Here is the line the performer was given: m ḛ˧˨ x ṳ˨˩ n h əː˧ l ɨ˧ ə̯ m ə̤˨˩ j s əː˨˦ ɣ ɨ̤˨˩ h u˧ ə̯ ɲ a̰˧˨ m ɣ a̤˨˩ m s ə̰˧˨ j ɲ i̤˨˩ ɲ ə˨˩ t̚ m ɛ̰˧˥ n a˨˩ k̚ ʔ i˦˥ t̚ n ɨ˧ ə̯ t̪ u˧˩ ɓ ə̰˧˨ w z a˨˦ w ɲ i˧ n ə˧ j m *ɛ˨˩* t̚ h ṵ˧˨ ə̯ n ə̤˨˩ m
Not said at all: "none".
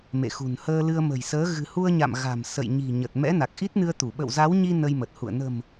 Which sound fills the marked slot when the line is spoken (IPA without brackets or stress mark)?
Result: ə˨˩